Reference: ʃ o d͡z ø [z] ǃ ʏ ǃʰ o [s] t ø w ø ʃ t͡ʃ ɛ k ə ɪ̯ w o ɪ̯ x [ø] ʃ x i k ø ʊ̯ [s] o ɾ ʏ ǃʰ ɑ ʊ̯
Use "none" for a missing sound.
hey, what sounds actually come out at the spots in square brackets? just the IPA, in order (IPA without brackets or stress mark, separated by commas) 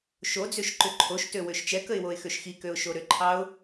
ʃ, ʃ, ø, ʃ